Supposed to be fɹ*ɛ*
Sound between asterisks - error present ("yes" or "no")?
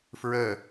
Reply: yes